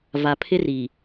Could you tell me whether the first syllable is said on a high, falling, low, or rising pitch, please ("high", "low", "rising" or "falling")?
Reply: low